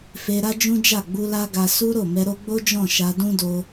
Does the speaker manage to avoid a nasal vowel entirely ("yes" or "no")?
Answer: no